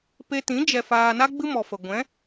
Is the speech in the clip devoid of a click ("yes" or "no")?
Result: yes